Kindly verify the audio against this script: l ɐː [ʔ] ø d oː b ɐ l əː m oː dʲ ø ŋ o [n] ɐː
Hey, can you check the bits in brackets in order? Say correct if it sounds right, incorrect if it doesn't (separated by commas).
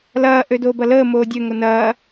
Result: correct, correct